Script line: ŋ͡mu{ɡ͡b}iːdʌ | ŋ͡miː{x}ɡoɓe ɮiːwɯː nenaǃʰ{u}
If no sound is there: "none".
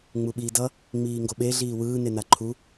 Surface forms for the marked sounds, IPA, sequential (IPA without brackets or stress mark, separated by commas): ɓ, ŋ, u